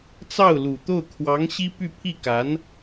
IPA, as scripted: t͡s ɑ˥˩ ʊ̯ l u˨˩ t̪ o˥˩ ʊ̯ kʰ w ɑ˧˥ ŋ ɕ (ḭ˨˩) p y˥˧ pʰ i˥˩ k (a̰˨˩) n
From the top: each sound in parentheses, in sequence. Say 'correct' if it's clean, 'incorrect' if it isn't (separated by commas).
incorrect, incorrect